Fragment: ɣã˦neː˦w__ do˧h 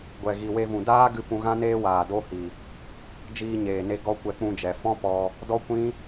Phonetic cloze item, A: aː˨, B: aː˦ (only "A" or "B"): A